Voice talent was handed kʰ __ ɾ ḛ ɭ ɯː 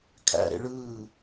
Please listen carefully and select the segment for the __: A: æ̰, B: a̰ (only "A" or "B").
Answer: A